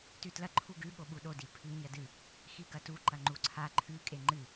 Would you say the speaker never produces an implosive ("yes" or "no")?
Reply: no